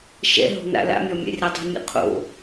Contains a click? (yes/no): no